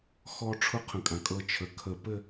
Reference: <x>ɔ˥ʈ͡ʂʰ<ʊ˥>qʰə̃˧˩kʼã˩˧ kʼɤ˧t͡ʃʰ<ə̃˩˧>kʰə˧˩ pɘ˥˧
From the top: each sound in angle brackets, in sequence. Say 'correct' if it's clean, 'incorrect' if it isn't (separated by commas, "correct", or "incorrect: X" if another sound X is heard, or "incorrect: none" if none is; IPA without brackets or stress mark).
correct, correct, incorrect: ə˩˧